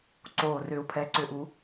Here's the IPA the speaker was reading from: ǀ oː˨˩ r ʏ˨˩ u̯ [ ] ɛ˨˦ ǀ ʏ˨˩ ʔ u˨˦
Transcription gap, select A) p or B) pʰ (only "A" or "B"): B